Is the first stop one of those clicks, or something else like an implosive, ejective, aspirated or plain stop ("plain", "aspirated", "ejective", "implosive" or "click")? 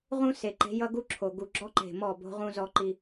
click